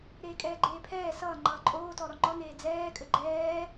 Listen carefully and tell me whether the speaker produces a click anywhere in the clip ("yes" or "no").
yes